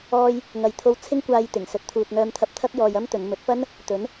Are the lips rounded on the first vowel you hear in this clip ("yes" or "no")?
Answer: yes